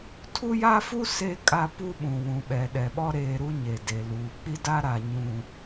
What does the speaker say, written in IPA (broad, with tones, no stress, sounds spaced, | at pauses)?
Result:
tʰ u˦ j a˦ f u˦ s e˦ kʼ a˦ p u˦ ɓ ũ˨ w ũ˨ ɓ ɛ˨ ɗ ɛ˨ ɓ ɔ˦ ɾ eː˨ ɾ u˦ ɲ e˨ d e˨ l uː˨ k͡p i˦ d a˦ ɾ a˨ ɲ ũ˨